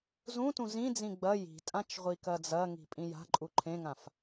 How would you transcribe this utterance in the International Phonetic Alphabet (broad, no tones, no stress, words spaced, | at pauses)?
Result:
zũtũ zĩ d͡zĩɡ͡bɐ ji̤tʼãt͡ʃ ʁʷikɐd͡zɐŋi̤ pʼĩja̤ǃʼu ǃʰẽŋãf